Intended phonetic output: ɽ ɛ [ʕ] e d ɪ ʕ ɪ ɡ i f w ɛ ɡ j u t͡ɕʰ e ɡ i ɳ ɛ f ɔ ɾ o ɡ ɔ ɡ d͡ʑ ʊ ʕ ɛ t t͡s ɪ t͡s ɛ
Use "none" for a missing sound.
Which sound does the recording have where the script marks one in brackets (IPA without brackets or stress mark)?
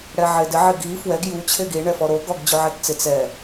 ʕ